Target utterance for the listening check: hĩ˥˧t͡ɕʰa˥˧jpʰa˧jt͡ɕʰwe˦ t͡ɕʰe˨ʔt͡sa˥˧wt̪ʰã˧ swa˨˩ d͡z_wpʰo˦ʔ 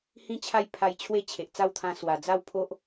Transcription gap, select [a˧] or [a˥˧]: a˥˧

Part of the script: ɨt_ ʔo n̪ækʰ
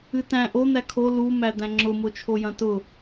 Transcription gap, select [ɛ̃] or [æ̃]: æ̃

